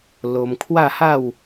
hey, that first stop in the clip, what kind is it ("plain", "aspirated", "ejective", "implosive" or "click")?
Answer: aspirated